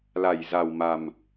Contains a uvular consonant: no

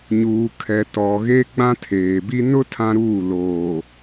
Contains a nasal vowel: yes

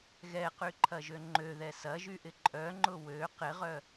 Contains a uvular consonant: yes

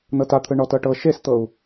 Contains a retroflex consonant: yes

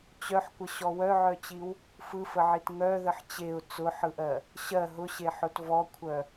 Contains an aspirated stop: yes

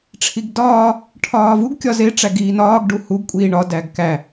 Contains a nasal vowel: no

